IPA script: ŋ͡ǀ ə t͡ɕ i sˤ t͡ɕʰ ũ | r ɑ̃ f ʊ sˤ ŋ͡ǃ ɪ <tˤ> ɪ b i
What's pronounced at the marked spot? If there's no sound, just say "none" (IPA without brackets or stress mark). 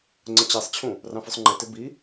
t